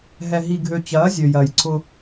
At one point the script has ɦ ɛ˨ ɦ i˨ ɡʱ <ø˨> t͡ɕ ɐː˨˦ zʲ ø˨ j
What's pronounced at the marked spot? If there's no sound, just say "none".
ø˨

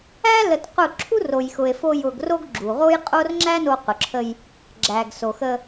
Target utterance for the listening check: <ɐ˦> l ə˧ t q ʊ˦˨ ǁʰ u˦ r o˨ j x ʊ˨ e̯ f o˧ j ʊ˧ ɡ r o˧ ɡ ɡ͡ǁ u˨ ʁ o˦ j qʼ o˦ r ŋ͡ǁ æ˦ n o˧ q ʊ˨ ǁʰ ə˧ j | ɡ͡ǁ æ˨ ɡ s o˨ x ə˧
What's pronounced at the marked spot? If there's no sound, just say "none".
æ˦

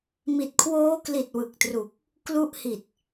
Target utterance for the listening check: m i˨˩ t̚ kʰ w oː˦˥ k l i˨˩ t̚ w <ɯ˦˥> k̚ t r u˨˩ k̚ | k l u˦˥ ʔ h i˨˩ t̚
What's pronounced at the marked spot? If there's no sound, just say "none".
ɯ˨˩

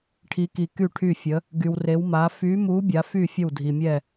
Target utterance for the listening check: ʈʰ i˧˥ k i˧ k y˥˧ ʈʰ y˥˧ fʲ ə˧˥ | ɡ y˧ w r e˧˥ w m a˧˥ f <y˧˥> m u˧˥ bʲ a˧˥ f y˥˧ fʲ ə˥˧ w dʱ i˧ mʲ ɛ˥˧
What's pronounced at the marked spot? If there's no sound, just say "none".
y˧˥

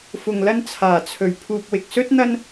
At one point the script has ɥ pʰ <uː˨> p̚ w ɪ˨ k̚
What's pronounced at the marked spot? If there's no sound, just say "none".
uː˨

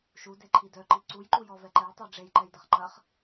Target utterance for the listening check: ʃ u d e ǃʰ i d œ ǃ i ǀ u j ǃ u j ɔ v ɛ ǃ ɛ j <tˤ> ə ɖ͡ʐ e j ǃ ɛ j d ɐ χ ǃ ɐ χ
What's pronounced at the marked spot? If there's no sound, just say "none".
tˤ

